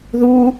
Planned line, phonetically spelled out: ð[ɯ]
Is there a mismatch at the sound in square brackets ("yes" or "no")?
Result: yes